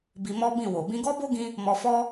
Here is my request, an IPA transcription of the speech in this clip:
b i˧ m ɔ˦ b ĩ˦˨ w o˨ b ĩ˧ ɡ ɔ˦ b o˦ ɡ ĩ˧ | m ɔ˧ f ɔ˦

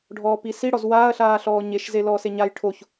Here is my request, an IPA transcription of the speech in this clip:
ɖʱ ɔː p i s i ɽ ɔ z w aː ɐ̯ ɬ aː ɬ ɔː ɲ e ʃ z e l ɔː s e ɲ a j ʈʰ o ç

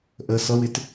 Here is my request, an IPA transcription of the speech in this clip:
ʔ ə s ʌ w ɪ t

